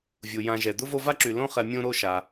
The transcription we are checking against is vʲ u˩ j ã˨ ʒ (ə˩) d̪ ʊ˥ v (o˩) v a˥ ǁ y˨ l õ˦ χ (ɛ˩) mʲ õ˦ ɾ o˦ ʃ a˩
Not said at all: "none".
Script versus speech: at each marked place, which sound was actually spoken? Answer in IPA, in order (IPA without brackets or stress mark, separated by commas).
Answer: ɛ˩, o˦, ɛ˨